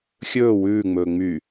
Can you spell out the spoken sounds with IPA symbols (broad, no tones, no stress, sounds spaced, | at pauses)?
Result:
xʲ ɵː w ʉː ŋ͡m ɵː ŋ͡m y